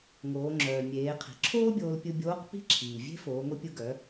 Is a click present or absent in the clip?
present